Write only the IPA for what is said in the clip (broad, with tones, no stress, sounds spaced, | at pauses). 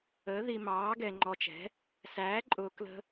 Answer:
əː˩˥ ð i˨ m ɑː˩˥ ɡ ɛ˨ ŋ͡ǃ ɔ˨ t͡ʃ ɛ̤˩˥ | s æː˩˥ ǃʼ ʊː˨ k l ə̤˦